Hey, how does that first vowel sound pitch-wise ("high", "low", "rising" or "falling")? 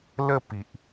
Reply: falling